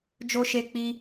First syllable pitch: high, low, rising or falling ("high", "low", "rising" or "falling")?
high